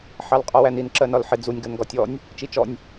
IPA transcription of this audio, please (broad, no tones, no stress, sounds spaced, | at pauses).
ħ ɑ l qʼ ɔ w æ n i n ǁ ɜ n ɒ l ħ ɪ d͡z u nʲ ɡ ɜ n ɡ ɒ tʲ ɔ nʲ | t͡ʃ i t͡ʃ ɔ nʲ